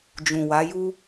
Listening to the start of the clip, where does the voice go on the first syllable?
low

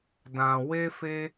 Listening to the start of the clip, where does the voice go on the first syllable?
low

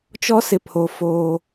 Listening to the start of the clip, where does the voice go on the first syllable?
high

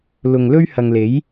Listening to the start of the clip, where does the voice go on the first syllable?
low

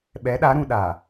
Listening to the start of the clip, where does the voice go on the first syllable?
rising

